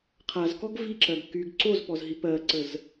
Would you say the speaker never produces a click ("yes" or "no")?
no